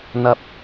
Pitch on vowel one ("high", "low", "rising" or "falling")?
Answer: low